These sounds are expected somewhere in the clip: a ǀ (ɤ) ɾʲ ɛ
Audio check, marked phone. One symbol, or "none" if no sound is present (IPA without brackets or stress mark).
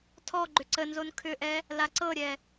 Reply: ɤ